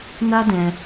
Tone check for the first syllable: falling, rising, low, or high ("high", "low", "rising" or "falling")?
high